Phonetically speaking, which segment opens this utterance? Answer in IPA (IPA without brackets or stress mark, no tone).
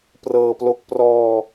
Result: p